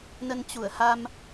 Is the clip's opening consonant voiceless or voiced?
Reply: voiced